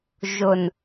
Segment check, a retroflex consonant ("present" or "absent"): absent